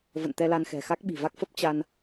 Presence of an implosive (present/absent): present